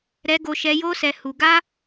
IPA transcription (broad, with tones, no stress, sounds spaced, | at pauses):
ɾ ɛ˧ ɡ o˧ ʃ ɛ˧ j o˦ s ɛ˧ h u˧ ɡ a˦